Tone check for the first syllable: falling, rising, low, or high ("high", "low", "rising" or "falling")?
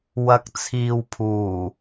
low